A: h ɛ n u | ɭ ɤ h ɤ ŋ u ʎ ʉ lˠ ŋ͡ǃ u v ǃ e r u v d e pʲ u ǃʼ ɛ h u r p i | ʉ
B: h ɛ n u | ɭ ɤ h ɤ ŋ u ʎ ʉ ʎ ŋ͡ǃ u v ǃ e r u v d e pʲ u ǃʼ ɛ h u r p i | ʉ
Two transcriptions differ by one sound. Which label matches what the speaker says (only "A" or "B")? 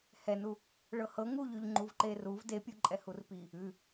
B